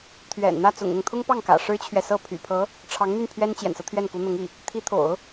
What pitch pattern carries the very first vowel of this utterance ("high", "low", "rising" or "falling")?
low